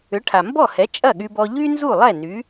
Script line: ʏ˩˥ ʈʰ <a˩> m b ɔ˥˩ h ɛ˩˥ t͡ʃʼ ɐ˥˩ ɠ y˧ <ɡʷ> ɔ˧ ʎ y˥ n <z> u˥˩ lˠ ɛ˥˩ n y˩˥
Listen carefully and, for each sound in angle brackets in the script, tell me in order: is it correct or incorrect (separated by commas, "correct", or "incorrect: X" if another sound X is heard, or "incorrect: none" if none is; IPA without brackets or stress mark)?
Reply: correct, incorrect: b, correct